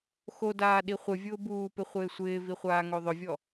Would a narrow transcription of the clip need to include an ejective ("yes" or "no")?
no